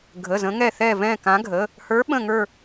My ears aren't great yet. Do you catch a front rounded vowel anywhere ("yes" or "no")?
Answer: no